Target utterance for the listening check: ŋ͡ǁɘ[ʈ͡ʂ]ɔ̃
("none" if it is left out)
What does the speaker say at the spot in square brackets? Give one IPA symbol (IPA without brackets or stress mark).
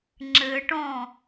ʈ